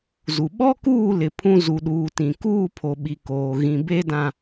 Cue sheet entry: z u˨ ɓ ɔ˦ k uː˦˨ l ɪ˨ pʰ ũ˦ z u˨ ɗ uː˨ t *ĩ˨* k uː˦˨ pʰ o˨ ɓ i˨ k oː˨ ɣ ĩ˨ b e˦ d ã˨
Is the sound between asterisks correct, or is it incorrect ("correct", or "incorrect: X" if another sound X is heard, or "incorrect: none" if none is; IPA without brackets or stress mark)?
correct